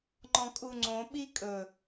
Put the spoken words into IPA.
ŋ͡ǃɔ̃kʼuŋ͡ǀõ ɓikʼɵ

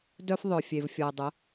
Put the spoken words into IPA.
dœ˦f ðˤœ˨fʲe˨v fʲɔ˨ə̯dˤə˨˦

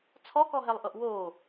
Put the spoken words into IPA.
t͡sʰɔkɔɦɛlˠʔɤʔ woː

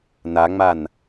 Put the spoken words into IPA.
naŋ͡man

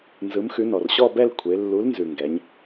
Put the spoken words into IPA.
nzɯ˨˥mxʉ˨˥ nɔ˩rɕɔ˥˧bɛ˥˧l kʷʰe˩˧ lːu˨˥lnzʉ˩ ŋɡɛ˩˧ɲ

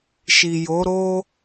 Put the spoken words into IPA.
ʃi˨jo˨˦ɾo˦

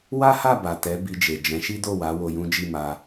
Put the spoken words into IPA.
wa˦ha˦˨ ba˨tɛ˨˦ bi˧d͡ʒe˨ d͡ʒɛ̃˨˦ʃi˦do˦˨ wa˨˦ wo˧jũ˦d͡ʒi˦˨ma˧

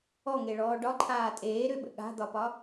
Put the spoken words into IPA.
ɔŋeɭɔː ɖɒǃʰaː tʼeːɾʏɓə̰ ɠa̤d̪ɒpɒ

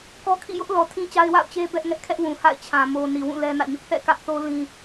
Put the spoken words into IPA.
kɔ˦ kʰḭ˦˨jʊ˦ʔ lɔ˨tʰĩ˦ t͡ɕa˦ɪ̯wa̰˦˨ʊ̯ t͡ɕe˦bɛ˦ʔŋɛ˦ʔ kʰɛ˦ʔwũ˨ ha̰˦˨ɪ̯t͡ɕʰã˨ mo˨ ni˨wũ˦˨ lɛ˦nä̰˦˨ɲʊ˦ʔ θɛ̰˦˨kä˦ʔθo˦ lĩ˦

